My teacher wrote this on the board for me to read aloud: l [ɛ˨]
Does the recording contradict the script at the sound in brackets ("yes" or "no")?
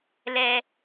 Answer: yes